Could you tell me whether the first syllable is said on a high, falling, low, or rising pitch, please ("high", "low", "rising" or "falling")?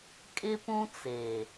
high